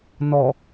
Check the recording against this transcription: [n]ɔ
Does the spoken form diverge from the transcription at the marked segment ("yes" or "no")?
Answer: no